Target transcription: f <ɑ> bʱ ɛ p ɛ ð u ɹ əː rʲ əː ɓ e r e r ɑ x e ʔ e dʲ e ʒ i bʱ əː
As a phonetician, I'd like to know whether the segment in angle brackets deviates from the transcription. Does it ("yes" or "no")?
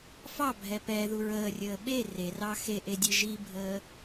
no